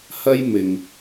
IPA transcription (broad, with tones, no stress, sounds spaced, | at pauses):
h ɐ˥ j m ɪ˨ ŋ